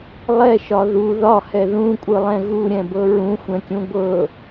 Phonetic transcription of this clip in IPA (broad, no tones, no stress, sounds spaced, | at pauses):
lˠ ɛ ʃ ɒ ð u ð ɒ h ɛ ð ũ kʷʼ ɯ lˠ ɛ̃ ɣ u ɾʲ ɛ̃ b ɤ ɹ ũ xʷ ɛ̃ kʲ ũ ɡʷ ɤ